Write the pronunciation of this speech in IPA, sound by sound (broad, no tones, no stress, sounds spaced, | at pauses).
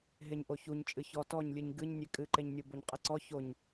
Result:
ɦ e ɲ ʔ o ç u ɲ t͡ʃʼ ɨ ç ɔ t ɔ ɲ lʲ ɨ ɲ ɡ ɨ ɲ nʲ e kʼ ɨ ǃ e ɲ nʲ o b o ɲ qʼ e ǀ ɔ ç o ɲ